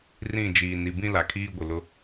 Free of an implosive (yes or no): yes